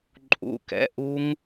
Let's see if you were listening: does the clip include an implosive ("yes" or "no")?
no